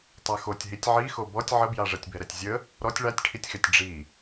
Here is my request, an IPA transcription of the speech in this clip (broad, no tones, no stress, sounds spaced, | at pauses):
tˤ a x o tʲ ɦ i tʲ ʕ i x o b ɔ tʲ ʕ ə b j a ʐ ɛ tʲ b ɛ ɾ ɛ tʲ zʲ ə | ɾ ɔ tʲ ɭ a tʲ ʈʰ i tʲ x ɛ tʲ ɖ͡ʐ i